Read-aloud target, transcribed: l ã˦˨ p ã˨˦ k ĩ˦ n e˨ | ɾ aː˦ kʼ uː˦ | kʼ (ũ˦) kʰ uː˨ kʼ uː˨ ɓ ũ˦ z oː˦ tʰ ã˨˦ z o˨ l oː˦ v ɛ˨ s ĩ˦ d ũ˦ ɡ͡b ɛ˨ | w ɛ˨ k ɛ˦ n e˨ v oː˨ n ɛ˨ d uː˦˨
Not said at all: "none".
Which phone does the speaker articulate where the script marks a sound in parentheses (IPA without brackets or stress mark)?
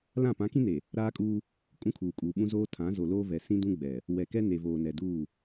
ũ˦